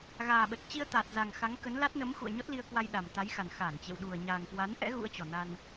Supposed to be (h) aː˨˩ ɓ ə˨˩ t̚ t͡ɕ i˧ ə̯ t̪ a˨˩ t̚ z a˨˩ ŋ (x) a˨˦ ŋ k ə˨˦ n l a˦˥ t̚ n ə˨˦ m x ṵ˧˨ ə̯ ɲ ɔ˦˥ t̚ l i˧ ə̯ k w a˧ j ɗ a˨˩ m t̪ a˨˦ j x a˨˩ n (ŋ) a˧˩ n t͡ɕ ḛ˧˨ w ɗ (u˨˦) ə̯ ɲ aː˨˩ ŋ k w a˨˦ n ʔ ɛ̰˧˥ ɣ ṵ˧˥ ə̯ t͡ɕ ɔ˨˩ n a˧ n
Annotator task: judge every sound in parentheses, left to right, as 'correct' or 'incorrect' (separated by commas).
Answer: incorrect, correct, incorrect, incorrect